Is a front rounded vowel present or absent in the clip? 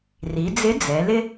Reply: absent